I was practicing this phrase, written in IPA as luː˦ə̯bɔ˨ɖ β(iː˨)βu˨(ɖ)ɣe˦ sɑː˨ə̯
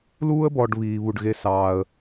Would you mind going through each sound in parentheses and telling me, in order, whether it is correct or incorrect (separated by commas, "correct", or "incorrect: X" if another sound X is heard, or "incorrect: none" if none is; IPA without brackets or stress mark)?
correct, correct